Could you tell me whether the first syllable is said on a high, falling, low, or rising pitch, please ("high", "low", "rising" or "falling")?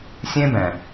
high